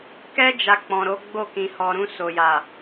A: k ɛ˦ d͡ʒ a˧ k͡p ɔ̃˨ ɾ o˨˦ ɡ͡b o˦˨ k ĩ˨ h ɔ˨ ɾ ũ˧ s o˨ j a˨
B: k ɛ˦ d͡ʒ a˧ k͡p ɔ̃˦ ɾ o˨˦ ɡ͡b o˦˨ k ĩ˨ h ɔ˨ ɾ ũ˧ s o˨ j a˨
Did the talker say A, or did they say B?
A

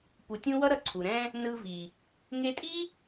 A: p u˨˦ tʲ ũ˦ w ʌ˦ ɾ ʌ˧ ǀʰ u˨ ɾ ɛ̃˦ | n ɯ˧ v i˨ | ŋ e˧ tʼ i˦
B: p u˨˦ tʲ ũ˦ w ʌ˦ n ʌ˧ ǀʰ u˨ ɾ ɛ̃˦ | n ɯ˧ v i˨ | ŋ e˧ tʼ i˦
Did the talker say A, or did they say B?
A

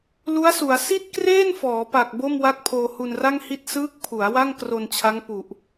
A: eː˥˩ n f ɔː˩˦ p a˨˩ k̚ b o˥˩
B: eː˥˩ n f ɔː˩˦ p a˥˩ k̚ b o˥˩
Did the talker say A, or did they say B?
A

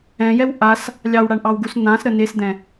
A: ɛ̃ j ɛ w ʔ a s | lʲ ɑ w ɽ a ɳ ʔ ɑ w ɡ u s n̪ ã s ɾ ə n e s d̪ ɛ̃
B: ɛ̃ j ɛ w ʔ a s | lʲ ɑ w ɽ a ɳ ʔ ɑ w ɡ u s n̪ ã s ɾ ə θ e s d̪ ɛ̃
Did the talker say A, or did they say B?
A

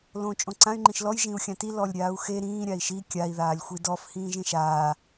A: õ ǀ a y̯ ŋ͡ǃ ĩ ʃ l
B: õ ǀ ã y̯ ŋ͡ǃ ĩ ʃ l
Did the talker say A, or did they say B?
B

